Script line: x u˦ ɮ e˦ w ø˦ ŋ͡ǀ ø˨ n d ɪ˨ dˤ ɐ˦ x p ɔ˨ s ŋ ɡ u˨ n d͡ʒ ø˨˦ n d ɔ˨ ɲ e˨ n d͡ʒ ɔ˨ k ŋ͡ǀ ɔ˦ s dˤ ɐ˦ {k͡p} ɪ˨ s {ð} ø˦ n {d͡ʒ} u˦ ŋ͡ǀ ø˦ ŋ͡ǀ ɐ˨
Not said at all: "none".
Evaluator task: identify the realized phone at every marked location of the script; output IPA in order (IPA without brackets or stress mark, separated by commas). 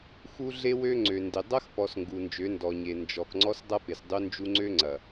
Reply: p, dˤ, d͡ʒ